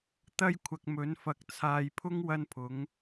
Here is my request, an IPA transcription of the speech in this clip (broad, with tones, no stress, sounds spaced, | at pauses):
t̪ ɐ˥ j kʷʰ ɐ˨ k̚ m ɵ˨˥ n f ɐ˧ k̚ t͡sʰ aː˨ j pʰ ʊ˥ ŋ w ɐ˥ n pʰ ʊ˨˥ ŋ